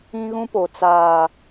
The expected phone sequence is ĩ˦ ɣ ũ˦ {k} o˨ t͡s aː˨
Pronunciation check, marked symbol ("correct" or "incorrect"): incorrect